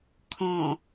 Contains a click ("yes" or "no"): no